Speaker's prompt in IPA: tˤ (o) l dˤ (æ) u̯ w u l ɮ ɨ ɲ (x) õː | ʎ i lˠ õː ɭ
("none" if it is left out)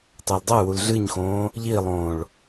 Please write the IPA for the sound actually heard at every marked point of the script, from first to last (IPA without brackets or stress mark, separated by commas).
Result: o, ɐ, x